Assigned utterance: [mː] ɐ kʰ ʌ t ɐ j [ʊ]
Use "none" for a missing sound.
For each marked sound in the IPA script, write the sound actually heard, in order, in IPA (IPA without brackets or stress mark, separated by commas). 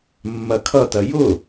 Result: mː, ʊ